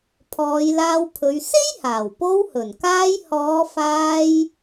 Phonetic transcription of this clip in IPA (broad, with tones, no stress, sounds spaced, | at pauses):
pʰ ɔː˨˧ j l aː˧ w pʰ ɵ˨˧ ɥ s e˥ j h aː˨˩ w p o˧ w h ɵ˨˩ n k aː˧ j h ɔː˨˧ f aː˧ j